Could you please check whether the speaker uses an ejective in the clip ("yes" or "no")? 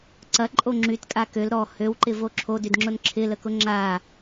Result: yes